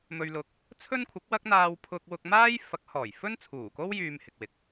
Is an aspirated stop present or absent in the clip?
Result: present